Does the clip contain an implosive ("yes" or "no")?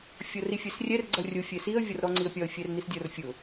no